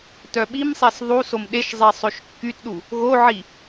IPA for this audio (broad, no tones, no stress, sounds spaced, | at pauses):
t œ ɓ i m sˤ e s ðˤ u s o m ɗ e ʃ zˤ e sˤ ø ʃ kː y t ɗ u | ɣ o ʕ i